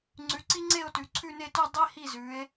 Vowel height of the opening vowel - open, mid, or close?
close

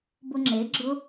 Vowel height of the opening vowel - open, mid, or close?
close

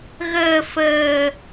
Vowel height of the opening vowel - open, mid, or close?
mid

